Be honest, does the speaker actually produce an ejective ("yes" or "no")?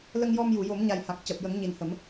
no